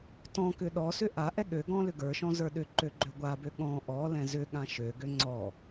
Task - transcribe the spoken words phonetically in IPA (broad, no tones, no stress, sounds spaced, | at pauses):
t ɔ̃ k ʏ ɗ ɔ s ʏ ʔ a ʔ ɛ ɠ ø ɡ ɔ̃ l ʏ ɡ ə˞ ʃ ɔ̃ z ə˞ ɗ ʏ ǃ ø ɡ͡ǃ ø ɡʷ a b ø ɠ ɔ̃ ʔ ɔ l ɛ̃ z ʏ ɠ ã ʃ ø ɡ ø ŋ͡ǀ ɔ